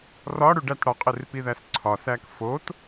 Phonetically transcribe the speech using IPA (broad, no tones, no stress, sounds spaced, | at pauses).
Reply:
r ɒ ɽ u ɖ æ t ɽ ɒ qʼ e r p i ð æ s ǀʰ ɒ s æ k f o t